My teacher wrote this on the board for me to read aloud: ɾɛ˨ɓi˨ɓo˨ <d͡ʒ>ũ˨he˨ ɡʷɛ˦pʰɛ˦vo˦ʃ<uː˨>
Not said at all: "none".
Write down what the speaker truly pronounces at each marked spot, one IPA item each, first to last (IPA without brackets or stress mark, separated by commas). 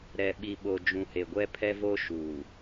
d͡ʒ, uː˨